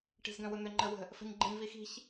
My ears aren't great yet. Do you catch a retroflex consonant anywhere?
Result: yes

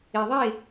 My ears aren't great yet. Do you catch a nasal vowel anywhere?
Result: no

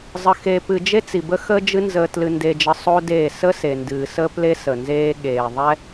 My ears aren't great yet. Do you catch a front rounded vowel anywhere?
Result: no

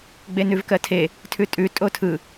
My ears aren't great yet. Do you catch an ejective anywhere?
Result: yes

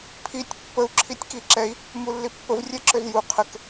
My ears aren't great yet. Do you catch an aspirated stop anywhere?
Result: yes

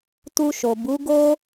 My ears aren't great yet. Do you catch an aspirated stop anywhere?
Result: no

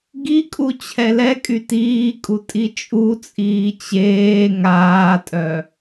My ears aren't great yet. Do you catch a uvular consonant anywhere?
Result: no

